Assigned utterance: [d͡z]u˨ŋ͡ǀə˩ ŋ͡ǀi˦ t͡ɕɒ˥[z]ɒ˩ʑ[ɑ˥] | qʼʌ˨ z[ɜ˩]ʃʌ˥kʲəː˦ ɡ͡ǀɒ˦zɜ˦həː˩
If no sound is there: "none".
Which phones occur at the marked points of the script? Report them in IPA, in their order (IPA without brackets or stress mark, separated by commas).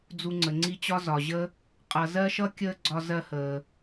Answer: d͡z, z, ə˥, ɜ˥